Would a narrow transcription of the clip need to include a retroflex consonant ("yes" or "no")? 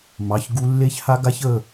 no